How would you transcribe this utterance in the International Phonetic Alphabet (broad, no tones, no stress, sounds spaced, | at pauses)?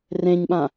r ẽ ɲ ɓ ã